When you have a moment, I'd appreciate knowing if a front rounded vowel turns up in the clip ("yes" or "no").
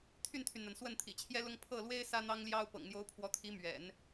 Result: yes